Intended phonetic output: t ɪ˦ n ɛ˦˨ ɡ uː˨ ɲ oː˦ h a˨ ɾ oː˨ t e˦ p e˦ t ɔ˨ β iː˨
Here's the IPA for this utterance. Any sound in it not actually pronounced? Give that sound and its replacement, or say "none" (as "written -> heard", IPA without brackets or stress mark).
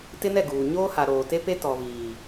none